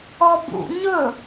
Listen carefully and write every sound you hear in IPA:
ɔ b ṵ ɲ ɵ

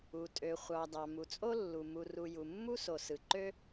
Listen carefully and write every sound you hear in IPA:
u˩ tʼ ø˩ χʷ ɑ˩ d ɑ˩ m u˩ t͡sʼ o˥ lː u˩ m u˩ r u˩ j u˩ mː u˥ s o˩ s ɯ˩ ǃ ø˥

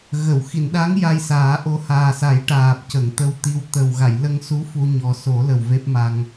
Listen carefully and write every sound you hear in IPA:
ɣ ə˨˩˨ w x i˨˩˨ n ɗ a˧˥ ŋ j a˧ j s aː˨˩˦ ʔ o˧ h aː˨˩ s a˨˩˦ j ʈ aː˨˩ p̚ c ə˨˩˨ ŋ t̪ ə˧ w t̪ i˧ w t̪ ə˨˩ w ɣ a˨˩˨ j l ə˧ ŋ s u˧˥ f u˧ ɲ ɔ˨˩ s o˨˩˦ l ə˨˩ w v e˦˥ p̚ m a˧ ŋ

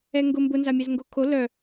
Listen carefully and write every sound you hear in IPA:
ɛ ŋ ɡ ʊ m b ʊ n z a mʲ ɛ z ŋ ɡ o kʰ o l œ

